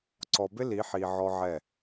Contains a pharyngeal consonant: yes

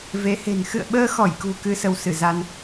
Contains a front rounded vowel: no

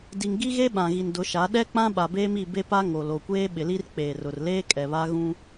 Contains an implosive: yes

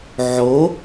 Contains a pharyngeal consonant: yes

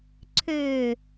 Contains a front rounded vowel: yes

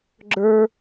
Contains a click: yes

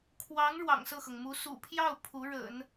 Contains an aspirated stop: yes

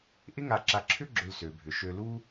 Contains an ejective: no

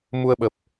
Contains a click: no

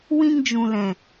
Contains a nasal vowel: yes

